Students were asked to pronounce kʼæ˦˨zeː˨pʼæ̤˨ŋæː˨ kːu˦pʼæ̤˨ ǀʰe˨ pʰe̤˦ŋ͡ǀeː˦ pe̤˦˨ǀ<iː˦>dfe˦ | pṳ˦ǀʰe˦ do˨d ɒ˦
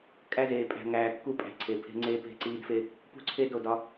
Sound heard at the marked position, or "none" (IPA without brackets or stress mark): iː˦